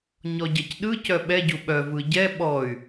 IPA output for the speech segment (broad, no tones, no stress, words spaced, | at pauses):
ɲɔɟɐcɗɯ cœɓɛ ɟuɓœ vɯɟɛ ɓɔy̯